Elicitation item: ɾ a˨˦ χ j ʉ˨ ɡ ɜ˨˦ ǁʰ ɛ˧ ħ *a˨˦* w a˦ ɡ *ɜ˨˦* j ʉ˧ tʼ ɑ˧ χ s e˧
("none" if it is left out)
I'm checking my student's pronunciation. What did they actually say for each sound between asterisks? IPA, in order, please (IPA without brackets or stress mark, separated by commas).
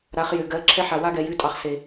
a˨, ɛ˨˦